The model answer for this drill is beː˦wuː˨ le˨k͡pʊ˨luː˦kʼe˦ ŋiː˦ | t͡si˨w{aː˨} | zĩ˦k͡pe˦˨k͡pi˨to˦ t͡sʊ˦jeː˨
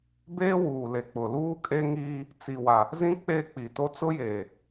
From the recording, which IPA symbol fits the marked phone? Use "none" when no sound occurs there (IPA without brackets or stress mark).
a˨